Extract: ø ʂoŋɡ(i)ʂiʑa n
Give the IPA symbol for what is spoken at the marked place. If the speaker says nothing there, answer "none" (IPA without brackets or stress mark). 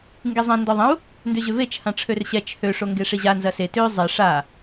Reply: e